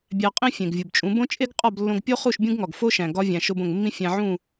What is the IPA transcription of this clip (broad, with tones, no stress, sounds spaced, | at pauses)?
bʲ æ˧ qʼ ĩ˥ fʲ ẽ˩ ɡ vʲ u˩ b t͡ʃʼ ũ˩˥ b õ˥ t͡ʃʼ e˥ ɡ qʼ ɒ˥˩ b lː õ˧ ɡ pʲ o˥ χ u˥˩ ʃ bʲ ũ˥ ɡ ŋ ɒ˩ ɡ f o˥ ʃ æ̃˩ ɡ ɒ˥ vʲ æ̃˩ ʃ o˧ b õ˩ ŋ mː ĩ˥ fʲ æ̃˧ ʕ ũ˥˩